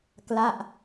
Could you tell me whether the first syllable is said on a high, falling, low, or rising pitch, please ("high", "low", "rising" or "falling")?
falling